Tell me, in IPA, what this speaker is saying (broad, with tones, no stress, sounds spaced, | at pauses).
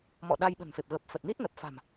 m ɔ̰˧˨ ɗ a˧ j ɓ ə̤˨˩ n f e˨˩ p̚ ɣ ə˨˩ p̚ f ə˨˩ t̚ n i˦˥ t̚ n ə˨˩ p̚ f a̤˨˩ m